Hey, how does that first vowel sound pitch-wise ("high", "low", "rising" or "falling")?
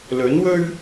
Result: rising